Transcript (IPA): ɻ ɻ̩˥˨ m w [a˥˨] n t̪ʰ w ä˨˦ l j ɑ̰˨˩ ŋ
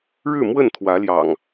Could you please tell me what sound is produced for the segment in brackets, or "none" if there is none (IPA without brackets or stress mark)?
ə˥˨